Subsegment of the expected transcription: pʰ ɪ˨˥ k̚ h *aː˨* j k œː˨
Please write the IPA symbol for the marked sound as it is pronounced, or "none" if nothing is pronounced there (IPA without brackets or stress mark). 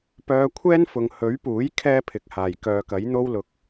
aː˨˩